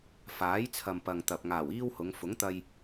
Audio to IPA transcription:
f aː˨˥ j t͡sʰ ɐ˨ m p ɐ˨ ŋ t̪ ɐ˨ p̚ ŋ aː˨˩ w iː˥ w h ʊ˨˧ ŋ f ʊ˨˥ ŋ t̪ ɐ˧ j

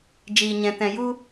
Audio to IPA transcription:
d͡ʒ iː˨ ɲ ɛ̃˨ t ɛ̃˨ j u˦

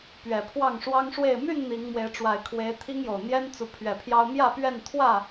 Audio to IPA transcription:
p ɥ ɛ˨˩ pʰ w ɑ˥˨ ŋ ʂ w ɑ˦ ŋ ʂ w e˥˨ ɪ̯ m y˥˨ n n̪ i˨˦ ŋ m w e˨˦ ɪ̯ ʈ͡ʂ w a˨˩ ɪ̯ kʰ w e˨˦ ɪ̯ t̪ʰ i˦ ŋ j o˨˩ ʊ̯ n̪ j ɛ˦ n t͡s u˨˦ pʰ ɥ ɛ˨˩ pʰ j ɑ˦ ʊ̯ m j ä˥˨ p ɥ ɛ˥˨ n t̪ʰ w ä˥˨

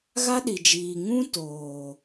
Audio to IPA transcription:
ɣ a˦ ɗ i˨ d͡ʒ iː˨ ŋ ũ˦ t oː˨

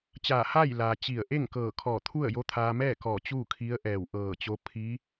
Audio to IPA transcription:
t͡ɕ aː˧˩ h a˥˨ j l aː˩ t͡ɕ i˧˩ ə̯ ʔ e˥˨ ŋ k ɤː˧˩ kʰ ɔː˧˩ t̪ʰ u˥˨ ə̯ j o˧˥ t̪ʰ aː˧ m ɛː˥˨ k ɔː˧˩ t͡ɕ uː˥˨ kʰ i˧˥ ə̯ ʔ ɛː˧˩ w ʔ ɤː˧˩ t͡ɕ o˧˥ pʰ i˧˥

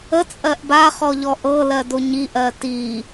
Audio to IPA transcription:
ə t͡sʼ ɜ ʔ b a χ ɔ ʎ ɔ ʔ ɤ l ɜ d o ɲ i ʔ ɜ t i

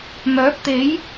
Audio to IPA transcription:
m œː˨˥ p̚ t̪ e˨˥ j

